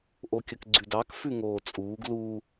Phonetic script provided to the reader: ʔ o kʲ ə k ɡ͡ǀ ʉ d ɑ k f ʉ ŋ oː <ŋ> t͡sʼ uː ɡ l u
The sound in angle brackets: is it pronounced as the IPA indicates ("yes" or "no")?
no